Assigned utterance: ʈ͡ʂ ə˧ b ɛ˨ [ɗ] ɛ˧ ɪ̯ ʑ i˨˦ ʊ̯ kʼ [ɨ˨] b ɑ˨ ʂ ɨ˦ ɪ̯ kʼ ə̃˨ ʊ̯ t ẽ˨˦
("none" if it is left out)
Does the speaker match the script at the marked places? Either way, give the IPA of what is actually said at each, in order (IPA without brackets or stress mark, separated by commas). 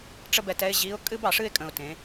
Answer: t, ɨ˦